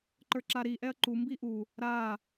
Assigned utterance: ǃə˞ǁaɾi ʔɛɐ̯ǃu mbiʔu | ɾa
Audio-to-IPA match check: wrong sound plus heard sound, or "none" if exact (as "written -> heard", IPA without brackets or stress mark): none